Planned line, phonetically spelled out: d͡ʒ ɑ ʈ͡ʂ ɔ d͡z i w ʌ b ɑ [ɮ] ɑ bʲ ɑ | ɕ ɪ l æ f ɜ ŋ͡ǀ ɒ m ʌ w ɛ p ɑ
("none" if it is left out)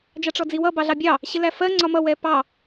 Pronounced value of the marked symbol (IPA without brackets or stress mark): ɮ